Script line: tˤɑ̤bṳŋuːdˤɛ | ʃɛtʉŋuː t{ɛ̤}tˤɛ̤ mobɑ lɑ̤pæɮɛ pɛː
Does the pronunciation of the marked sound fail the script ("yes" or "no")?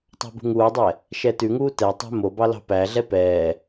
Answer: yes